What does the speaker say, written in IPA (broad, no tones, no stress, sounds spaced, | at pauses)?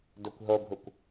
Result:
d o kʷ ɦ o bʱ u kʷ